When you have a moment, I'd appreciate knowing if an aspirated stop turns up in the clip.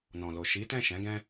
no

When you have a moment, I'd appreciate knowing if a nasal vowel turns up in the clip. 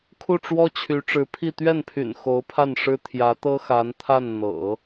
no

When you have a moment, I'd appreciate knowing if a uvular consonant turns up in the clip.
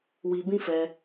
no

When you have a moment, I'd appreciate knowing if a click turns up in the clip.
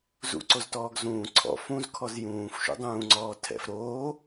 yes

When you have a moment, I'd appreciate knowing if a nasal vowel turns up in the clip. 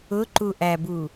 no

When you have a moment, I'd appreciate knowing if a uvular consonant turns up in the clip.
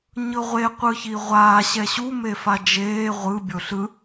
yes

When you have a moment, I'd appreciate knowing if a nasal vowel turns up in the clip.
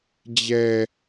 no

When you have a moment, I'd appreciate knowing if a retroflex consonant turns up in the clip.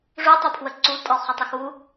yes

